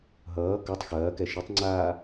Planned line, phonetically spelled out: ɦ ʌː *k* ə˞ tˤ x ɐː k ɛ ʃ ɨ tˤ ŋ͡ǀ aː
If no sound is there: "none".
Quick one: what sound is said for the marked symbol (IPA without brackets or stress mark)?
k